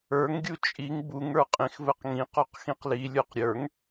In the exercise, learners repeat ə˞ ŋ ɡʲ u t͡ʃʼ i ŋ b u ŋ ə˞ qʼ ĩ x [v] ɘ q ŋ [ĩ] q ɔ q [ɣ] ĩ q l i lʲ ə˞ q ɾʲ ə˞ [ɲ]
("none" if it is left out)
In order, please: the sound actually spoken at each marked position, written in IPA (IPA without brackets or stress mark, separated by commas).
v, ĩ, x, ŋ